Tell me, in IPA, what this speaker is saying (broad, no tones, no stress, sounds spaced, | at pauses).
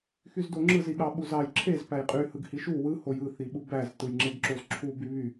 x y z d o ŋ͡ǁ ɯ z i ɠ ɑ ɓ u z ɑ j ǁʰ e z p æ j qʼ y h ɯ ɡ h i ʃ u w ɯ h o j ɯ θ i ɓ u b æ z t ɯ j ŋ͡ǁ e ɡ ǁ o z ǁʰ u b y β y